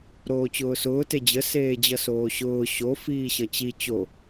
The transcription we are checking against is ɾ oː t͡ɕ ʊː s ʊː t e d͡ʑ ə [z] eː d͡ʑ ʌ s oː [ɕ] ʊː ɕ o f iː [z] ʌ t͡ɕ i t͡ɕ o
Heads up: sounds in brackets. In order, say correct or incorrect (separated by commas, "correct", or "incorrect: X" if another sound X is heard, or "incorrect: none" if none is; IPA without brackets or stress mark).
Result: incorrect: s, correct, incorrect: ɕ